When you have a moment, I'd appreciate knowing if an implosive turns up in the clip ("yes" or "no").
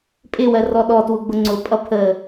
yes